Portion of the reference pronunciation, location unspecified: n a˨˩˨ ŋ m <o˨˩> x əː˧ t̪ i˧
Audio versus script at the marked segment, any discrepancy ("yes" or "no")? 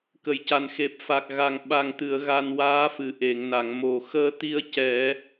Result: no